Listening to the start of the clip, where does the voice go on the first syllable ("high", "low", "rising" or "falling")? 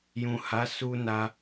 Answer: low